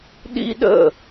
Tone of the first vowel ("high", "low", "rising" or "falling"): high